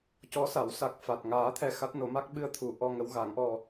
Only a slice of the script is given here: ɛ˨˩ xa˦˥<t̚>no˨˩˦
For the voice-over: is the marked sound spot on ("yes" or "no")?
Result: yes